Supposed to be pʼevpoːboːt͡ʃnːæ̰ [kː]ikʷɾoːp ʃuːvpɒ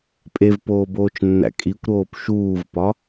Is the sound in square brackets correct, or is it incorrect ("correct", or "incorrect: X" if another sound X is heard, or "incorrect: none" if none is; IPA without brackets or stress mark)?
incorrect: kʼ